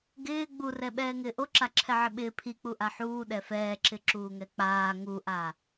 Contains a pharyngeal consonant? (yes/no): yes